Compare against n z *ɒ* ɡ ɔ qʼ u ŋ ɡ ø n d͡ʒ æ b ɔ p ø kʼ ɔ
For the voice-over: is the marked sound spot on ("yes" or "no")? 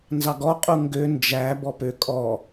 no